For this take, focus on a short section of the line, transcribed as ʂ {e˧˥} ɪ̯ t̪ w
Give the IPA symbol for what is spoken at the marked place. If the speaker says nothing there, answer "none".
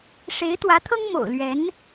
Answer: e˧˥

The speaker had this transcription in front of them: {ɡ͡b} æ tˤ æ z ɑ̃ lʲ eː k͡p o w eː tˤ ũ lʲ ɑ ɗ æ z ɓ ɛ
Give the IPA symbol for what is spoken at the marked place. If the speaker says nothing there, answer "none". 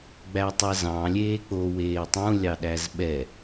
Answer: ɡ͡b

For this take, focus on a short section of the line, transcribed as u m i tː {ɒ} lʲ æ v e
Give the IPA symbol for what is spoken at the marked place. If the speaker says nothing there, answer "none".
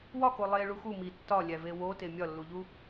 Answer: ɒ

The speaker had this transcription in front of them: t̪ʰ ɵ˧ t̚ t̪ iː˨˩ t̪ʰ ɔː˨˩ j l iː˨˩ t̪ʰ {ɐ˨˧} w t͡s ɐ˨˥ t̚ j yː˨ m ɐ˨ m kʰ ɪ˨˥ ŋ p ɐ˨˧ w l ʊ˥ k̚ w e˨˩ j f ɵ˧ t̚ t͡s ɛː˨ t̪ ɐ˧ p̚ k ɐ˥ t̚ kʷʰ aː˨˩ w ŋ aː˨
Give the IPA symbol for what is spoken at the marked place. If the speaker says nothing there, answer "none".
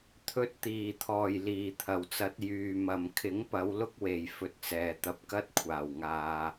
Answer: ɐ˨˩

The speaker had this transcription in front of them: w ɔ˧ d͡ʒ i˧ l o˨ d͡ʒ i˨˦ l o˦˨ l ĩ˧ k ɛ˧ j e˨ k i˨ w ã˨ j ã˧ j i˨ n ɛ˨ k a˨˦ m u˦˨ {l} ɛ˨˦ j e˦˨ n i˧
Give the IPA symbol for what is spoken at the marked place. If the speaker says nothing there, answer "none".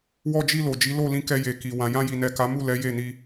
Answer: l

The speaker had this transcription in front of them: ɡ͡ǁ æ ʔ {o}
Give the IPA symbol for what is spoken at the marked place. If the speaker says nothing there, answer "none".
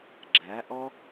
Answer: ɔ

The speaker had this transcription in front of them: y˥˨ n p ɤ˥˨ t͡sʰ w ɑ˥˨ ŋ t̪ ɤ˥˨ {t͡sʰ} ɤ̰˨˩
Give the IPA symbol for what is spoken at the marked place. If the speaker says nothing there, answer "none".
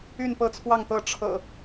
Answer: ʈ͡ʂʰ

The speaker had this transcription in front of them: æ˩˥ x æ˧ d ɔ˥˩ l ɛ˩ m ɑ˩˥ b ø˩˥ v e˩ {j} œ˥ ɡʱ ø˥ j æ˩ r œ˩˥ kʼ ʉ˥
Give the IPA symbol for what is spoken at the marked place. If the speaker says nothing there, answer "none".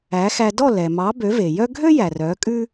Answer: j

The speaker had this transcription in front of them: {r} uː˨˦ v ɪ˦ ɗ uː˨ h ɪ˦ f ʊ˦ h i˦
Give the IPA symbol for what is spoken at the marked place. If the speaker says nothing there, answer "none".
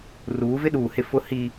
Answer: r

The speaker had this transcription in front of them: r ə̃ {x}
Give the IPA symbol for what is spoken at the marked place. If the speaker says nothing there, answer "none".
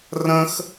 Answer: x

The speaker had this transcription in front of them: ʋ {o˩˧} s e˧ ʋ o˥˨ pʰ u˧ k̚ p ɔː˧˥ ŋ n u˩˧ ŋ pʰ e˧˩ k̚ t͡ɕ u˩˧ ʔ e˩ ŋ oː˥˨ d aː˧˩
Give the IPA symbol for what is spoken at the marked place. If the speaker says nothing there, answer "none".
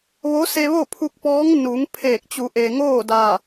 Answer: o˧˥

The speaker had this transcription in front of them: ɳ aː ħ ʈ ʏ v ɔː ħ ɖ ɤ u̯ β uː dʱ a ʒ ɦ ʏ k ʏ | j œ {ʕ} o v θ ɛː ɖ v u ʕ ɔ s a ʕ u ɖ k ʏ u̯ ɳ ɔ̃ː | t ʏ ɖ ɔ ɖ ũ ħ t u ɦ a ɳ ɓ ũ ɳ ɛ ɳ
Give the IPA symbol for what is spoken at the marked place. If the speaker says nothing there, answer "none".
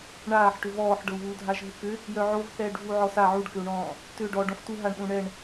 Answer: ʕ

